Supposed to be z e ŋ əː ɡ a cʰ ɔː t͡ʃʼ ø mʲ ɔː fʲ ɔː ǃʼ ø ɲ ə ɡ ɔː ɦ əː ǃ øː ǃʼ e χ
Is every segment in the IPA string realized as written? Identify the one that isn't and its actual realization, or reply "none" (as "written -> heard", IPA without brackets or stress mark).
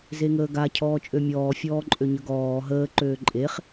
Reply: none